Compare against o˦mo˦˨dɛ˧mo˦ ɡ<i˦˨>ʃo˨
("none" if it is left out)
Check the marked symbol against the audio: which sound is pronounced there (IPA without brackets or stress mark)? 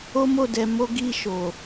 i˦˨